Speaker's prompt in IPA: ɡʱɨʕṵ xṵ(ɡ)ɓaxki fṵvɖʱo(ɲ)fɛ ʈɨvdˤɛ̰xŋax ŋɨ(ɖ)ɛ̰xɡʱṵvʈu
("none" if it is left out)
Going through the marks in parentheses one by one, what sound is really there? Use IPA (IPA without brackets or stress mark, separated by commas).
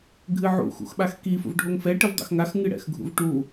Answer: x, ŋ, ɽ